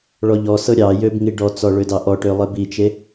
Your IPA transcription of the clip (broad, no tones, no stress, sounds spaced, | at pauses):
ɭ ɔ ʎ ɔ s ɤ ɾʲ ɑ j ø b ŋ i ɖ ɔ t͡s ɔ ɭ ø d ɑ ʔ ɔ ʈ ø lˠ e b i t͡ʃ e